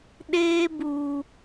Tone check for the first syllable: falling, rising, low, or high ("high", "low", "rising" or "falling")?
high